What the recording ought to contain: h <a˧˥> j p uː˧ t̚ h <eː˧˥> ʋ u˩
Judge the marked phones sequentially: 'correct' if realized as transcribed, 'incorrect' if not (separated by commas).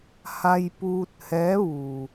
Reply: incorrect, incorrect